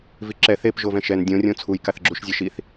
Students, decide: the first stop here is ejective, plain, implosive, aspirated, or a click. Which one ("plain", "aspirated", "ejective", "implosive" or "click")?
click